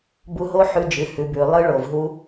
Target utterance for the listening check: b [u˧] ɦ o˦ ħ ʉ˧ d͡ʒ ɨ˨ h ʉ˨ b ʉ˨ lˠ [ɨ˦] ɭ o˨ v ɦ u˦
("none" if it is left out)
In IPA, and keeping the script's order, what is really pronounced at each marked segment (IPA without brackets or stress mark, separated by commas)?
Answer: u˧, ɨ˦